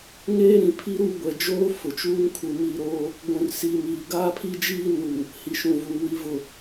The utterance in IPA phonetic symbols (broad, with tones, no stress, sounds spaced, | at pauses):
ŋ eː˦ ɾ ĩ˨ pʰ i˦ ɾ u˦˨ ɡʷ ɛ˨ d͡ʒ oː˦ f ʊ˨ t͡ʃ uː˦ ŋ kʰ u˨ m i˦˨ ɾ oː˦ | ɡʷ ũ˨ r s iː˨ m iː˨ ɡ aː˦ pʰ i˦ d͡ʒ iː˦ n u˨ | h i˨ ʃ ũ˨ v uː˨ w i˨ v ʊ˨